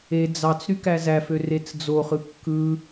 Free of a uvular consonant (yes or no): no